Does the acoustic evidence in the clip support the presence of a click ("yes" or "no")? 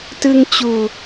no